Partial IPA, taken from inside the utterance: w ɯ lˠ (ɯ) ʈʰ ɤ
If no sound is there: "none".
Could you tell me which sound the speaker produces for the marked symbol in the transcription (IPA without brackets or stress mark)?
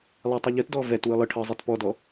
ɯ